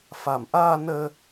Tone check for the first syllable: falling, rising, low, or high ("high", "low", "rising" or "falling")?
low